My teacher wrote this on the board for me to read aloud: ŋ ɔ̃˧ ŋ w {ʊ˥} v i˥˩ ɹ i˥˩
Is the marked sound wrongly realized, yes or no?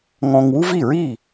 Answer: yes